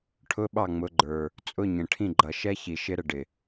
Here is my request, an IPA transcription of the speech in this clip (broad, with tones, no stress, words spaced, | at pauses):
ʈʰʊ˧˥˧ɓɑ˦˨ ŋ͡mʊ˨˦ɡ͡ǃə˞˨˩ | t͡sʼʊ˧˥˧ɲə̃˨˩ ʈʰĩ˦˨ɡ͡ǃʌ˨˩ʃɛ˦˥çi˨˩ ʃɪ˦˥ɾə˦˨ɖɪ˨˩